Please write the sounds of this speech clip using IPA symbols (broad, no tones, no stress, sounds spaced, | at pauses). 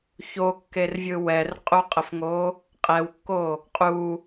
ç o kː e r vʲ ɯ w ɛ r qʼ u qʼ ə f ŋ o | qʼ ɛ w kː o | qʼ u